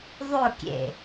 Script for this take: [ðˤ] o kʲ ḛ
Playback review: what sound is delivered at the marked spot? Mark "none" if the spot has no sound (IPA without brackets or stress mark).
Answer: ðˤ